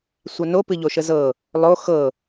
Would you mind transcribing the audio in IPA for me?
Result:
sʷɑno pɨʎoʃəzɤ | lˠo xɤ

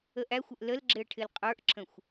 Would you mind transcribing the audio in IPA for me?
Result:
əʔæxʷəʔ ləlɡ͡ǁɪə̯ ʈʰɪlqʼə˞ʔǁə̃xʷ

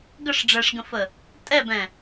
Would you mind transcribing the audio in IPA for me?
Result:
ɡəʂ ɖ͡ʐɛʂɡə̃fə | tʼɛbɛ̃

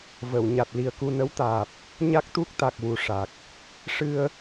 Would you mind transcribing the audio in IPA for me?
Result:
və˨˩˨w ɲa˨˩t̚ li˨˩ə̯ku˧nə˧˥wt̪aː˨˩p̚ | ɲa˦˥k̚t̪u˦˥k̚ t̪a˨˩k̚wu˨˩ʂa˨˩k̚ | ʂɨ˧ə̯

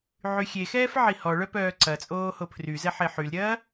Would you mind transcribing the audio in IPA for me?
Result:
ʕyxʲexɛːf ʕihɔɭœ pœːǀɐt͡sʼoː hopʰryzɛ ħeħylɾʲɐː

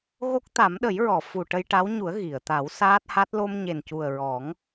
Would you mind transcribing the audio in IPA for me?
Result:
ɣo˦˥k̚t̪a˨˩˦mɗə˨˩˦jɹɔ˨˩˨ fu˨˩ʈə˧jʈa˧˥wɲu˨˩˦ə̯ ɣi˨˩˨ə̯ t̪a˨˩˦wsaː˦˥t̚ha˦˥t̚ lo˧mɲe˨˩ncu˨˩ə̯ ɹɔ˨˩˦ŋ

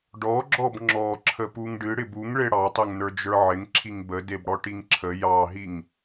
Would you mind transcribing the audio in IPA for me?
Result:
ɖɔɡ͡ǁɔb ŋ͡ǁɔ ǁʰəpuŋɖɨɽɪb uŋɭe ɽɑtˤeŋnə˞ d͡ʒə˞ʕɪŋǁʰiŋ bədeb ɽɔʈiŋǁʰə jɑɦiŋ

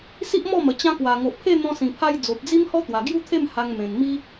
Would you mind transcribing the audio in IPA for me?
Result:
si˦ʔmɔ˥˧mə˨˩ t͡ɕã˧ kwa˨˩ŋo˨ʔpʰe˥˧ n̪ɔ̃˧sĩ˨˩pʰa˧j d͡zo˨p̚d͡zi˦m hɔ˦t̪wa˨˩ ɡju˦t̪ʰe˥˧m ha˧ŋmẽ˨˩nmi˦

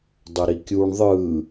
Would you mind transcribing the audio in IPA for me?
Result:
dˤoɾikʲuɳ ðˤɯ

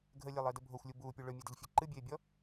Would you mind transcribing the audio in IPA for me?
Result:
ɡʱəlʲəːlˠəːdə bʱoxʷlʲu buːpʲu ɭɵmʲedəʎfʲe ǃɨbʲeːbʲɔ

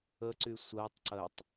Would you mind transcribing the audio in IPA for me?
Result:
əǀy sʷɜtˤǀɜtˤ

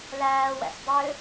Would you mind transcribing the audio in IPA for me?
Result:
læːwæ̰s dˤø

